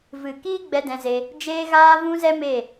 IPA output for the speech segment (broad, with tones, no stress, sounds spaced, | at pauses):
v ɨ˨ k iː˦ ɡ͡b ɛ˧ d ɛ̃˧ z e˧ | d͡ʒ eː˧ ɣ aː˧ v ũ˧ z ɛ˧ m e˦˨